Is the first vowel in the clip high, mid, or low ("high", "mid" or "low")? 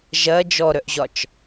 low